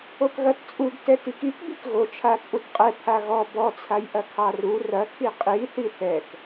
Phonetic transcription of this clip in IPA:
o k ɣ ɐ t t͡sʼ u ɡ t ɛ t i k i k b i k ɣ o t͡ʃʰ a t͡sʼ u t qʼ ɛ pʰ a ɣ ɔ b ɔ t͡sʰ a j ʔ ɐ kʰ ɑ r u r ɐ kʰ i qʼ i θ i θ ɛ k

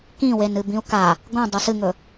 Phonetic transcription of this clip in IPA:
k ĩ w e n ɨ b ĩ u̯ k a | ɡ õ dˤ ɵ s ɨ ŋ ɵ

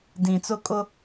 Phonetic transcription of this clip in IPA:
d ĩ˨ t͡s ʊ˦ kʼ ʊ˦

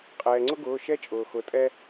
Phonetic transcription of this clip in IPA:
qʼ ɛː˩ ŋ͡ǀ ʊ˥ ɡ ʊː˩˧˩ ʃ ɛ˥ t͡ʃʼ ʊː˩ x ʊ˩˧˩ tʼ ɛ˥

